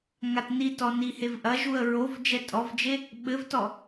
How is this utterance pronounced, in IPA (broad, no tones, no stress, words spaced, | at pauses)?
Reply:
ŋatnitɔ nihevʔɐʒuə̯ ɹov d͡ʒɛtʼɔvd͡ʒe | ɓɘvtɔ